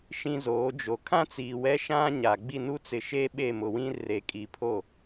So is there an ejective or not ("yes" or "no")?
yes